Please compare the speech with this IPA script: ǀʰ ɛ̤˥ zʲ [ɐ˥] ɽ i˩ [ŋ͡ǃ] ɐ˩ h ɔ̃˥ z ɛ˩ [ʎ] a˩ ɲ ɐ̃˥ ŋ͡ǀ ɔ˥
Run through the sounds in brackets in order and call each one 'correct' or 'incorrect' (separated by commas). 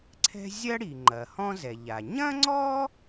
correct, correct, correct